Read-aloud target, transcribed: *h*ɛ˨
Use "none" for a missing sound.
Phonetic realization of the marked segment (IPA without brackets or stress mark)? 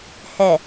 h